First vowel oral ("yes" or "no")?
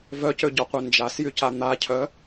yes